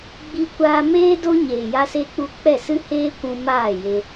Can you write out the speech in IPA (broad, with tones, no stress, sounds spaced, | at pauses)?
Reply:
ɡ͡b i˧ kʷ aː˧ m eː˦ d o˦ ɲ eː˨ j a˧ s e˧ k͡p u˧ k͡p ɛ˦˨ s ɨ˦ h eː˦ kʷ ũ˧ m aː˦˨ j e˧